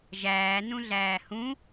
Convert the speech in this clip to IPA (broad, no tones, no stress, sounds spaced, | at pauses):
ʒ æː n ũ ɮ æː h ũ